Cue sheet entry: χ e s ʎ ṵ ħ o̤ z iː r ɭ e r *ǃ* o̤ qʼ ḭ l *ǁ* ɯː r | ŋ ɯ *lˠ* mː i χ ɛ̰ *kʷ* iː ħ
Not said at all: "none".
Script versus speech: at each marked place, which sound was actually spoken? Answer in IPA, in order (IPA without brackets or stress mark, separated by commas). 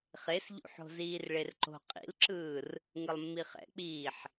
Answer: ǃ, ǁ, lˠ, k͡p